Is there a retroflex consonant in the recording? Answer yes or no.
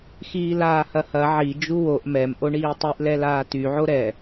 yes